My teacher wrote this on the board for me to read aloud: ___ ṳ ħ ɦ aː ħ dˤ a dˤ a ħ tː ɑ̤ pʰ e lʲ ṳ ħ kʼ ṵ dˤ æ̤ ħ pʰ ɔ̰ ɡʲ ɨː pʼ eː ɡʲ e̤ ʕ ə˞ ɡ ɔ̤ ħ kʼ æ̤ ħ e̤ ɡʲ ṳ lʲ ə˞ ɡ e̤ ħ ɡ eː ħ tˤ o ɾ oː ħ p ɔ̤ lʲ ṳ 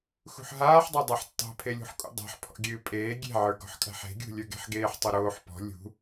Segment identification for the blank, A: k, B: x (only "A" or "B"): B